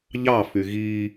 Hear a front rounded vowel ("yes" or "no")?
yes